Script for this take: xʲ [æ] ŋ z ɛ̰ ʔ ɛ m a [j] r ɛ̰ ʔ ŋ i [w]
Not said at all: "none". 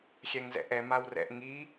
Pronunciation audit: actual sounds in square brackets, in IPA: ɛ, w, none

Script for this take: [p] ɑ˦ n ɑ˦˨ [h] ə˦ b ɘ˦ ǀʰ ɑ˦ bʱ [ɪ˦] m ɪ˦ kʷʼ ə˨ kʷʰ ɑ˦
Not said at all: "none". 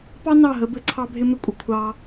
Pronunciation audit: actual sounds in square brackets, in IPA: p, ɦ, ɪ˦

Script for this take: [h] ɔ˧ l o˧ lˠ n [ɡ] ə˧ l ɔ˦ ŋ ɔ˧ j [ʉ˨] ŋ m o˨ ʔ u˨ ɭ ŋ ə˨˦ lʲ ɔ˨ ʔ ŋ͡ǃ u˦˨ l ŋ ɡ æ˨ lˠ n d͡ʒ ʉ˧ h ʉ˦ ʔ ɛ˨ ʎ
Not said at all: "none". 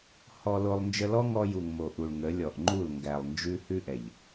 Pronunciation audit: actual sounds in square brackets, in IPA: h, d͡ʒ, u˨

